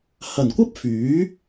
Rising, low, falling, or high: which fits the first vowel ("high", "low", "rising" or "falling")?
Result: low